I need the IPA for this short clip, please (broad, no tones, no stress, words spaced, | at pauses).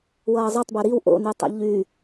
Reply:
wʌːzˤotˤbø ɾiw ʔo̰ny tˤḛʎy